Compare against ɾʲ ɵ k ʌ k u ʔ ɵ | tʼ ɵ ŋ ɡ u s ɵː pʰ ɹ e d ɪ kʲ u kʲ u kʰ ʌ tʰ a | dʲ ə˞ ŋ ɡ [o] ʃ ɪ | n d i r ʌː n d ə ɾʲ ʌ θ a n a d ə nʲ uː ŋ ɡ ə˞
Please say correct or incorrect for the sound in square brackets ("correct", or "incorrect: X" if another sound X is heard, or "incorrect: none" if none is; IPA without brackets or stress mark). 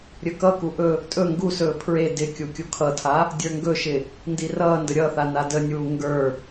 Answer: incorrect: ɵ